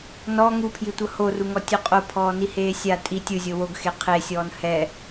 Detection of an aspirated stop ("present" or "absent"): present